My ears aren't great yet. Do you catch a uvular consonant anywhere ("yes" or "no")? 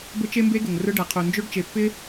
yes